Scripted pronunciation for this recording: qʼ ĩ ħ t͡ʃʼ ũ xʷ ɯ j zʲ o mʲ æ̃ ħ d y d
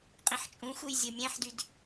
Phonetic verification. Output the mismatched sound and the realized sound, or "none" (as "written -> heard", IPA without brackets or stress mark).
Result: none